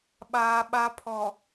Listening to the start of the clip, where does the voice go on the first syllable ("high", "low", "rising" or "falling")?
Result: high